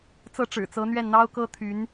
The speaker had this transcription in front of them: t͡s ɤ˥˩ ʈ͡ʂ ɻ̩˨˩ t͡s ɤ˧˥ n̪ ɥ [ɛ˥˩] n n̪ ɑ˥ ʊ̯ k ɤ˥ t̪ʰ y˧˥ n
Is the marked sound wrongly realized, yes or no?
no